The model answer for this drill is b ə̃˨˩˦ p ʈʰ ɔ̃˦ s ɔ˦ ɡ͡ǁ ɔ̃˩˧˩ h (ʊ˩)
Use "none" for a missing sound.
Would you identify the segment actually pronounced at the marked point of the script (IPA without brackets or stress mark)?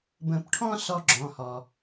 ɔ˩